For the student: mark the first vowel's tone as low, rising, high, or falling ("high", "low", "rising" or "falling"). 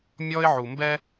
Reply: high